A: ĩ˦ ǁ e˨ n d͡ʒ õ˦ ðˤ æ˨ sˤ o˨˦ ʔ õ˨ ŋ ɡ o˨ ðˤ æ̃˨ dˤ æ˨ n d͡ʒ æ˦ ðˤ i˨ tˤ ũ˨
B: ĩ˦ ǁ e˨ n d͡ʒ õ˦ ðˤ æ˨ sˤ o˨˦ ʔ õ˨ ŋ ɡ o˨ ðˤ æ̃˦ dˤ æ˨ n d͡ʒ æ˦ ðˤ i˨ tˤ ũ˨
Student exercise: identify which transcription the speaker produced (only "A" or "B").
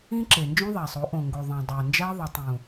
A